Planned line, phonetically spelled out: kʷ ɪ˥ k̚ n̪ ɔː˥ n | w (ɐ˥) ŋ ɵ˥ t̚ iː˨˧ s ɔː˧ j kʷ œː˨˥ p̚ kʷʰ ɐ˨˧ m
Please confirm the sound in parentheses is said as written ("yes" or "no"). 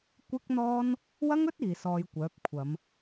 yes